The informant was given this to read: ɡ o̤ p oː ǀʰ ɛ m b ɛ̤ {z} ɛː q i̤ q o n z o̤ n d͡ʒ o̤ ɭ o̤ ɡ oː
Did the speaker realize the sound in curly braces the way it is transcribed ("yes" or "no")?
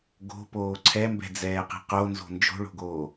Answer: no